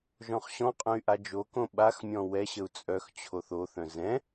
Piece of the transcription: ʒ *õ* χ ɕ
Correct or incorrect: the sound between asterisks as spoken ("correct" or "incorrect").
incorrect